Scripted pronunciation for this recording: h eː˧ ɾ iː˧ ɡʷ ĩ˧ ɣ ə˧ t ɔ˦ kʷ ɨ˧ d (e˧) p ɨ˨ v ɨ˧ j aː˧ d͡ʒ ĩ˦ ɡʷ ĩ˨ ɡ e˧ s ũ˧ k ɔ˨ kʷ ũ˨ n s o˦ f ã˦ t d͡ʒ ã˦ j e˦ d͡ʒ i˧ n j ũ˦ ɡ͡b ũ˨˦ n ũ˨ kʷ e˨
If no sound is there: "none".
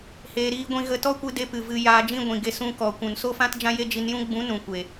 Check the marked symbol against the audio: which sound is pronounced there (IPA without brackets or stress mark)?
e˧